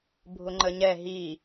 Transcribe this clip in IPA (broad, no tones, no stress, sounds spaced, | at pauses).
bʱ ʊ ŋ͡ǃ ə ɲ ɛ ɦ i